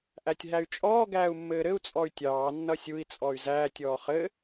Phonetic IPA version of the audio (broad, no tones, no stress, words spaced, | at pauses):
ʔætʲɦæy̯t͡ʃʼɔː ɡæːu̯mːɘːɾɘu̯ t͡sʼɔy̯tʲɑː nːʌsʲui̯ t͡sʼɔy̯zæːtʲ ɔːχɘ